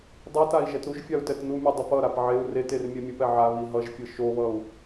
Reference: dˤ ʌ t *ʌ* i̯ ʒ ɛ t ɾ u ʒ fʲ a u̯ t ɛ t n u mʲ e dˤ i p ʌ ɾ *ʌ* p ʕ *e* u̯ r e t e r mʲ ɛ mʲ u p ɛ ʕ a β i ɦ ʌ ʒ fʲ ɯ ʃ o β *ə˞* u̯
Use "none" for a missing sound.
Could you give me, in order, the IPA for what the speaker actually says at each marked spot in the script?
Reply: a, a, e, ʌ

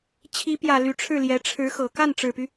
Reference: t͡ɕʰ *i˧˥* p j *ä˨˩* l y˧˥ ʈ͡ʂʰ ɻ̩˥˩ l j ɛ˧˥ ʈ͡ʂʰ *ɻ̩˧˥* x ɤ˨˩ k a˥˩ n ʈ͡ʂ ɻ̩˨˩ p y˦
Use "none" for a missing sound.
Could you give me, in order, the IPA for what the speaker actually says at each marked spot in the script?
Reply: i˧˥, ä˨˩, ɻ̩˧˥

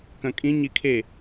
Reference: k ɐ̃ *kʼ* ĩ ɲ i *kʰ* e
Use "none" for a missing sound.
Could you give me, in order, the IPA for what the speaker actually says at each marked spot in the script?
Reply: kʼ, kʰ

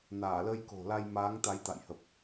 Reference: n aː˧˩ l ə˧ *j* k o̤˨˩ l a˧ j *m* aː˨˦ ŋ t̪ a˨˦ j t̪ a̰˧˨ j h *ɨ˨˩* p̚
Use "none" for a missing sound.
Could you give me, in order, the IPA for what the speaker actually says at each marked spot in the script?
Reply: j, m, ə˨˩

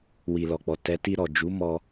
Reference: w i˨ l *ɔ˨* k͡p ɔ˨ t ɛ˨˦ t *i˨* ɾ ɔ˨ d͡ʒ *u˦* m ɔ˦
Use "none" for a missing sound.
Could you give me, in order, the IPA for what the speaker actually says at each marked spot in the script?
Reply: ɔ˨, i˧, u˨˦

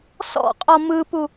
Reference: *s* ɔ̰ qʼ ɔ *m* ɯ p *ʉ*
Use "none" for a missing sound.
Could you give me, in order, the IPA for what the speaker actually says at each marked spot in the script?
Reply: s, m, u

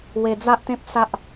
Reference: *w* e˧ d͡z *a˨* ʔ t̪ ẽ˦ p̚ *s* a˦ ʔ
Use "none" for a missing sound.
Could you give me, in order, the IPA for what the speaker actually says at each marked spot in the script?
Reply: w, a˦, s

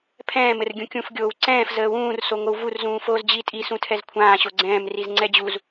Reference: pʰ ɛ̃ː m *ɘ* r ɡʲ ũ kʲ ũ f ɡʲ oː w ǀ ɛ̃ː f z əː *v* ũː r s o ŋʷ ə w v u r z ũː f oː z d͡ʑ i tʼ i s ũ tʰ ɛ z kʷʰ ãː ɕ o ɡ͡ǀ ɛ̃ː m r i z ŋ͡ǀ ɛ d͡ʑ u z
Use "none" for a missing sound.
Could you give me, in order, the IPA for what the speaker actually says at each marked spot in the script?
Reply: ɘ, w

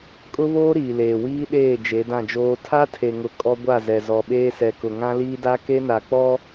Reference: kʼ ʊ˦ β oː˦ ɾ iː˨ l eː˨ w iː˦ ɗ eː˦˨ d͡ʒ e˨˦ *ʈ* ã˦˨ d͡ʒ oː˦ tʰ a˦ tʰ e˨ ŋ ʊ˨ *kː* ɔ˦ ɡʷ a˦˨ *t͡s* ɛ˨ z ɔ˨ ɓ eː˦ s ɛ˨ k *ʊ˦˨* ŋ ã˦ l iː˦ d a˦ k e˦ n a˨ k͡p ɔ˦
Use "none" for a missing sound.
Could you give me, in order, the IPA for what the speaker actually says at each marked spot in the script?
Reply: d, kʼ, z, ʊ˨

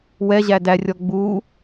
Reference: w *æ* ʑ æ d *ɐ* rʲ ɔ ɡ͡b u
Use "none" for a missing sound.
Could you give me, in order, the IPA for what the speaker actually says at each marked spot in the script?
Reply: ɛ, æ

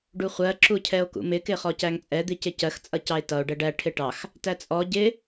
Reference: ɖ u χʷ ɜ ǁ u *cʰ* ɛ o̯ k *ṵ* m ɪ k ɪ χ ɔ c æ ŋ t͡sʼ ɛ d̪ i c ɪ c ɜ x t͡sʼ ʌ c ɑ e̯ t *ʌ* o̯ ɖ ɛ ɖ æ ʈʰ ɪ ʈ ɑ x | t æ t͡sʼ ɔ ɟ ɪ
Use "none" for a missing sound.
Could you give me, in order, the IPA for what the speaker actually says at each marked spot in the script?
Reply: cʰ, ṵ, ʌ

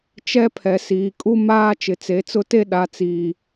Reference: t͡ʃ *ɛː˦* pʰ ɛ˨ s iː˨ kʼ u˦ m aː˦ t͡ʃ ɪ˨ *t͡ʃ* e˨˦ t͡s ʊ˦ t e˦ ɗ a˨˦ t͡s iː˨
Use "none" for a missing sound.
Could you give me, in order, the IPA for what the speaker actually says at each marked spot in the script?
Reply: ɛ˦, t͡s

